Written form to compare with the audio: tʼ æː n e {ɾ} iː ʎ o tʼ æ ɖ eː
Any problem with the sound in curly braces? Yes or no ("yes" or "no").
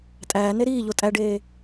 no